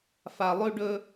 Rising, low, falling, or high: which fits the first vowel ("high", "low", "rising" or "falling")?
low